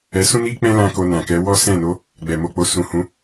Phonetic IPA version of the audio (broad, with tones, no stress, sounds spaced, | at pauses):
ɛ˧ s ũ˦ n i˦ k͡p ɛ̃˦ l ã˦ k o˧ n ã˨ k ɛ˨˦ w ɔ˦ s ɛ̃˦˨ n o˨˦ | ɡ͡b ɛ˨ m o˧ k͡p o˧ s ũ˨ h ũ˨˦